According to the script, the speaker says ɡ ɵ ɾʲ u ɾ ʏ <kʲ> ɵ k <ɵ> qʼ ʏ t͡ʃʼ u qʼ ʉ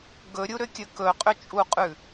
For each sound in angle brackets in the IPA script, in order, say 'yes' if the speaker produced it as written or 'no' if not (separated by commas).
yes, yes